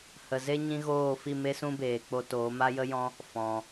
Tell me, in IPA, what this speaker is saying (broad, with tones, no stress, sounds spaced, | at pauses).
h ə˨ z e˦ ɲ ĩ˦ ɣ oː˦˨ f i˦˨ m e˦ s ũ˦ b eː˨ k͡p o˧ t oː˨˦ m a˦ j ə˦ j ɔ̃˦ | f ɔ̃˨